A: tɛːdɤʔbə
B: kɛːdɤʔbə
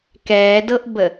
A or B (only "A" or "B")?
B